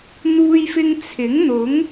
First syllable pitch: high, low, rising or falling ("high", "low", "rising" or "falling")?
high